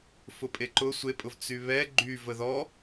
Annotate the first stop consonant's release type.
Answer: ejective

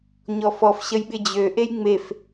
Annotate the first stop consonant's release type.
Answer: implosive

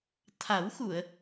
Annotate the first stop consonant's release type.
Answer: aspirated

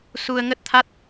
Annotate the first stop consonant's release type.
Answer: plain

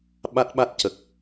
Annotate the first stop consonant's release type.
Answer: implosive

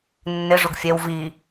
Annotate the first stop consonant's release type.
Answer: plain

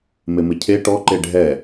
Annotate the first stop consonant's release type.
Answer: aspirated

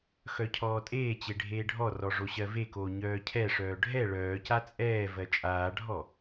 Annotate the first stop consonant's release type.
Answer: aspirated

